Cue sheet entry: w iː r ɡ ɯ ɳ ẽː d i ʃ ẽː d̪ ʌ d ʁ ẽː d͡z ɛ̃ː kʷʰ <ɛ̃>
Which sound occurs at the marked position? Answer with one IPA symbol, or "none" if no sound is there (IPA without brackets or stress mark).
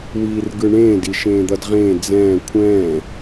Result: ɛ̃ː